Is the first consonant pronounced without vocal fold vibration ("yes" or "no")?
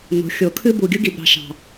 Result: no